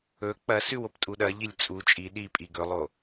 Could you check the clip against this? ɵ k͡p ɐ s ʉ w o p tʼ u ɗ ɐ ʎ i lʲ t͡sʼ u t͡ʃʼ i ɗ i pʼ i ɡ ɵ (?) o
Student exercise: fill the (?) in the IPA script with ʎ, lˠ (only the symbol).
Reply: lˠ